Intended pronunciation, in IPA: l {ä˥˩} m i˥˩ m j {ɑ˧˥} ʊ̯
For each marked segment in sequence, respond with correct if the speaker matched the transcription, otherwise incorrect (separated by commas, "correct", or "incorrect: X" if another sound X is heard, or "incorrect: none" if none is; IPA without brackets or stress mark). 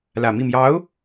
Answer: incorrect: ä˨˩, correct